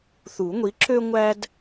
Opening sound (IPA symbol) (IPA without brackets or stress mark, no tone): θ